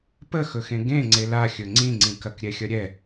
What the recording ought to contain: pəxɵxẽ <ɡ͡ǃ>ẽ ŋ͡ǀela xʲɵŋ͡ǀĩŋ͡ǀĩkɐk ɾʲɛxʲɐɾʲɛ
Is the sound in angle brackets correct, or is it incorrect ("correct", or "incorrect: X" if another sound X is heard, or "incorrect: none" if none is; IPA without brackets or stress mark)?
incorrect: ɡ